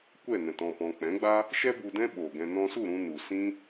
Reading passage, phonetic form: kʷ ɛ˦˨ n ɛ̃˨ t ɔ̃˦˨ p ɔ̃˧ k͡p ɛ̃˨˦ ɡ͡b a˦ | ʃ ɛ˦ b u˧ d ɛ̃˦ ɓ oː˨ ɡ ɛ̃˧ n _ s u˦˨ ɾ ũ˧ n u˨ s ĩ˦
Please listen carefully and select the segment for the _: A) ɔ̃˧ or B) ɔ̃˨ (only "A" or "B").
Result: A